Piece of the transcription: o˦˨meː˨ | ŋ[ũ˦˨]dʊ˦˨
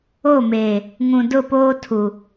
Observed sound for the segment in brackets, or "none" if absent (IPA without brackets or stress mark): ũ˨